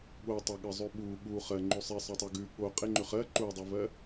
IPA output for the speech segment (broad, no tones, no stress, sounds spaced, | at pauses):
ɠ o tˤ e ɠ ɜ zˤ ʉ ɓ u ɠ u χ ɜ ŋ͡ǃ ʉ sˤ e sˤ ɜ tˤ ɜ ɡ ʉ ɠ o qʼ e ŋ͡ǃ ʉ χ ɜ ǃ u dˤ u v ɜ